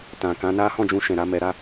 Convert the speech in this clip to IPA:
t ã˨ k ã˨˦ n a˦ h ɔ̃˦˨ d͡ʒ ũ˧ ʃ ɛ̃˨ ɾ a˧ m ɛ˧ ɾ a˦

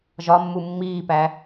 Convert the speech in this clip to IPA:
ʒ ɒ mː u mː iː p æ

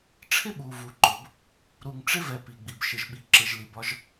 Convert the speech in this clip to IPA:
ʈ͡ʂʰ ɪ˦ ɓ u˩ v u˩ ǃ ʊ˩ b | ɾ u˨ ŋ ʈ͡ʂ ɪ˥ v ɛ˨ p i˩ ɡ͡b i˩ b ʃ ɪ˨ ʒ ɓ i˨ ǁ ɪ˨ ʒ l i˨ b ɒ˦ ʒ

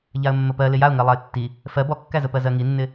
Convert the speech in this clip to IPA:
ʎ a ə̯ mː ə p ɜ l ɪ j a ʊ̯ ŋ ɜ lˠ a ɪ̯ tː i | f ɜ b ɔ kː æ z ə p ɜ z ɜ ŋ i nː ɪ

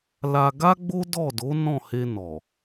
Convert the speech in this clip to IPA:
l a˧ ɡ a˦ ɡ͡b o˦ d ɔ˦˨ d o˨˦ n ɔ̃˦˨ h e˧ n ɔ˨

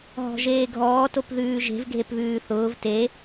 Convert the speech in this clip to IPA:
ɦ ɔ̤ ʒ eː ɡʱ ɔː t o p ð ʉː ʒ e̤ v ɡʱ e p β ʉː θ ʊː v t e

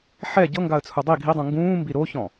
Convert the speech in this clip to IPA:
ħ ɛ ɟ ɤ ŋ ɡ a ə̯ t͡sʰ u dˤ i ɡʱ i dˤ ũ ŋ ɡ ũː m b i ɾ o ç ɔ̃

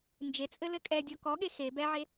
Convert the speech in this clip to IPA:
n d͡ʒ e t͡sʼ ɘ l ɘ kʼ ɛ dʲ ɔ k ɔ ɠ e x e b ɛ ʕ e

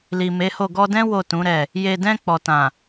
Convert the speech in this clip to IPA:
l i˨ m e˨˦ h o˦˨ ɡ ɔ˧ d ɛ̃˦ w o˦˨ t ũ˨˦ ɾ ɛ˦˨ | j e˨ d ɛ̃˧ k͡p ɔ˨ t ã˨

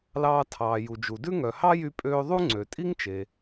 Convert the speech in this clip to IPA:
l ɑː˧ tʰ ɑː˩ j u˩ d͡ʒ u˩ d ʉ˥ ŋ œ˩ h ɑ˥ j y˧ pʼ øː˧ ðˤ u˥ ŋ͡ǀ ø˩ tʼ i˥ ŋ t͡ʃ e˩

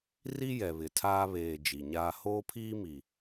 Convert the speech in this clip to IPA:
r i˦ j ɛ˨ β ɪ˨ tʰ aː˦ β eː˨ d͡ʒ i˨ ɲ aː˦ h oː˦ pʰ iː˦ m i˨

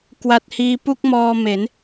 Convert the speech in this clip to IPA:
k w a˨˩ t̚ h iː˧ p u˥˩ k̚ m ɔː˧ m e˩˦ n

